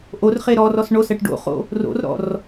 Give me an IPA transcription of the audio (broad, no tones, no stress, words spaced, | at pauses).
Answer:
ʔor χeɾɔrɔs ɳosɜʈ ɖo̰χo̰ | ro̰rɾɔ̰r